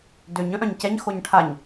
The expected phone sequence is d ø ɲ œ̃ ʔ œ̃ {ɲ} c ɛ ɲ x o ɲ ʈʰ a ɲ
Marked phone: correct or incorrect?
correct